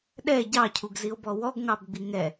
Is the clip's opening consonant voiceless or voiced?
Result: voiced